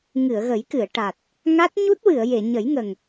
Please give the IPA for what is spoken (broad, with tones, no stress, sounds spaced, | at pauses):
ŋ ɨ˨˩˨ ə̯ ɣ ə˨˩˦ j k ɨ˨˩˨ ə̯ ʈ a˨˩ t̚ | ŋ a˦˥ t̚ ɲ u˦˥ t̚ w ɨ˨˩˨ ə̯ j e˨˩˨ ɲ ə˨˩˦ j ŋ ə˨˩ ŋ